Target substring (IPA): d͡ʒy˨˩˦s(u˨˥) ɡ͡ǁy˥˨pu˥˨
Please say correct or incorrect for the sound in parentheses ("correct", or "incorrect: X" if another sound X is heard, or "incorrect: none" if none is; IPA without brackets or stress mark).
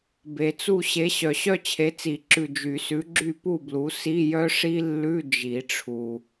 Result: incorrect: ʉ˨˥